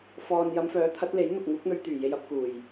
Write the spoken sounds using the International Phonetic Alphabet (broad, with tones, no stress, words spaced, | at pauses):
fɔː˨n jɐ˨˧mfœː˨˥t̪ʰɐ˨˥t̚le˨˥j n̪ʊ˨k̚ ŋuː˨˥k̚n̪ɵ˧ɥt̪yː˨˩ je˧jɐ˨˥p̚kuː˨˩j